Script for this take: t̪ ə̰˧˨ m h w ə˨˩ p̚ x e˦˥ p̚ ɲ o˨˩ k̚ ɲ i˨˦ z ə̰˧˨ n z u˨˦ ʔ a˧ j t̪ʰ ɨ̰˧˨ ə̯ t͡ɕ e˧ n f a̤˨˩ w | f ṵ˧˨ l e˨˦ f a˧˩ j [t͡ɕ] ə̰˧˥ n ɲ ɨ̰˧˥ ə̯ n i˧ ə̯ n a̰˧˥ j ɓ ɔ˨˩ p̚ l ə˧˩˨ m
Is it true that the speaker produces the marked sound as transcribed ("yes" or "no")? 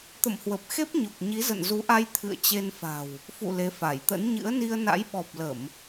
no